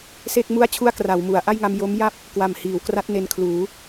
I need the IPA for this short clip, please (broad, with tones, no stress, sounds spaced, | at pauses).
s e˥˩ k̚ m u˥˩ a̯ t͡ɕʰ u˥˩ a̯ k r a˩˦ w m u˩˦ a̯ ʔ a˥˩ j ŋ a˧ m j o˦˥ m j a˥˩ p̚ | k w a˨˩ m h iː˩˦ w k r a˦˥ t̚ n e˧ n kʰ l uː˩˦